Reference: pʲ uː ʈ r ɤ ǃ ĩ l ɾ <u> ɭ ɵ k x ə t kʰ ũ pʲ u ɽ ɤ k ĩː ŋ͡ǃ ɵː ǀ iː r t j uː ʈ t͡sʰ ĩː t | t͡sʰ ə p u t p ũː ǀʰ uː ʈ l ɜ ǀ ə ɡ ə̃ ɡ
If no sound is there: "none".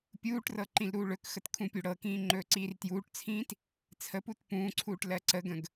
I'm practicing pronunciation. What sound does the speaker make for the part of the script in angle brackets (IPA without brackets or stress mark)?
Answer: uː